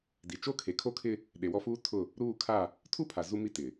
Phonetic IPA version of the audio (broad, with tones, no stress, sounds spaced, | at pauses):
d i˨ t͡ʃ o˦ kʰ e˨ kʰ o˦ kʰ ɪ˦ | ɗ e˨ w ɔ˦ f uː˦ tʰ ʊ˦˨ | ɾ uː˦˨ kʰ a˦˨ | tʰ u˦ pʰ a˨ z u˦ m i˦ t ɪ˨